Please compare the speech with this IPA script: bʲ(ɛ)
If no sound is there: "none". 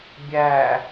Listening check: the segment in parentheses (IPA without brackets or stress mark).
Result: æ